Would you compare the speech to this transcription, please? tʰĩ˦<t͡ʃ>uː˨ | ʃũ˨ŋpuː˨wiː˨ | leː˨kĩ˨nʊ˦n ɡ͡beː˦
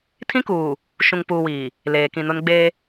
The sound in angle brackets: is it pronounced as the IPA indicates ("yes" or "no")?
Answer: no